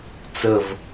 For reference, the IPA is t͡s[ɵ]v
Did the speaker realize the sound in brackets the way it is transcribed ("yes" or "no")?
no